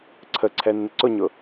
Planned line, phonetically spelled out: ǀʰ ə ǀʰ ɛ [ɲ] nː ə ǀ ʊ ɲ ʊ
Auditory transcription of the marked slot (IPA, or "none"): none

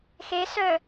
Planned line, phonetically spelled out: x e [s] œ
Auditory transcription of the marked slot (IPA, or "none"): s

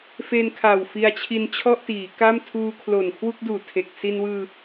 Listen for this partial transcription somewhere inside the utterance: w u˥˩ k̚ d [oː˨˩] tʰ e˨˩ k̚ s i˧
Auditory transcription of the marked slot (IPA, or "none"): uː˨˩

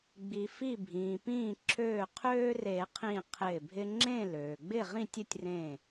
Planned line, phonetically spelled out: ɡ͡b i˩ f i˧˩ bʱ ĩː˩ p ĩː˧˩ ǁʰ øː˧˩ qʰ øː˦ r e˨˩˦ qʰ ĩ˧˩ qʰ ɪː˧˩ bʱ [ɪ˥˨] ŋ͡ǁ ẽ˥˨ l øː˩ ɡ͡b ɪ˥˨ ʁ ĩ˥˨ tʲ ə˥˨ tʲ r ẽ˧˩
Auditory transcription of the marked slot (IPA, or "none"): ɪ˦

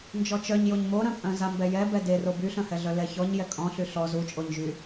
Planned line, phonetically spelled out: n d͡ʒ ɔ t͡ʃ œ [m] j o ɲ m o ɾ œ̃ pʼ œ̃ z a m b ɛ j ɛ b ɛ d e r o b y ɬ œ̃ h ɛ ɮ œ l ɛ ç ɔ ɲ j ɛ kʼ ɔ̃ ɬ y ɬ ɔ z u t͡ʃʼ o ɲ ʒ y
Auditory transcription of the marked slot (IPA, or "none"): ɲ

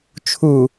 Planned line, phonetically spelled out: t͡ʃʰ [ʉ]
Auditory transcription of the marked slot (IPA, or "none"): u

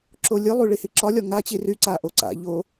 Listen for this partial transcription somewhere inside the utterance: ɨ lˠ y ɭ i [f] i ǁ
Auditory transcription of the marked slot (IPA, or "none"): h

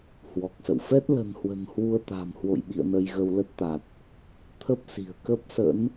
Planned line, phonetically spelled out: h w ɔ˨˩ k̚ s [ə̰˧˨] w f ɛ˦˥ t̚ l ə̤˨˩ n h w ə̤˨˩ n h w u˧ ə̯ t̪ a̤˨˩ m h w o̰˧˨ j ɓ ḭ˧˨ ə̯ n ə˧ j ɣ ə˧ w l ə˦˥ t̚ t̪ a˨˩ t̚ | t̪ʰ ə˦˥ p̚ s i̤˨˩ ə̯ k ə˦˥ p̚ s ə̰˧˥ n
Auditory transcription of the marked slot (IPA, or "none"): ə̰˧˨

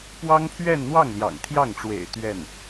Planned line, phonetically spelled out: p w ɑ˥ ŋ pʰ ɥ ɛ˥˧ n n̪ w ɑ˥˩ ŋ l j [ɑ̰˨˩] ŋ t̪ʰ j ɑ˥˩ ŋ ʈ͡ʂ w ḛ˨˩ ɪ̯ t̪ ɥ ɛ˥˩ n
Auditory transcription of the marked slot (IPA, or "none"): ɑ̰˨˩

